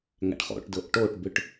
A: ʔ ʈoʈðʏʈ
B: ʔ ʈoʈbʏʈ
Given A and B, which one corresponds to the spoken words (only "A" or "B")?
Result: B